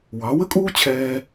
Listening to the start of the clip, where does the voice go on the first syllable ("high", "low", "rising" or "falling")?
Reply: rising